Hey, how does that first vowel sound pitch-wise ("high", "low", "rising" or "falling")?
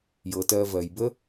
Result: low